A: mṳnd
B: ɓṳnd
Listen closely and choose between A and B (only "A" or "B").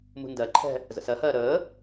A